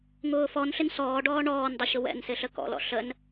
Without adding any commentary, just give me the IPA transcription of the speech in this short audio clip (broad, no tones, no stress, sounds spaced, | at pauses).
ŋ ʊː f ɔ n ɬ ɪ n s ɔː ɖ ɔː ɳ ɔː n dˤ ʊ ɕ ʊ w ɛ̰ n s ɪ ɬ ə k ɔ̰ l ɔ̰ ɬ ə n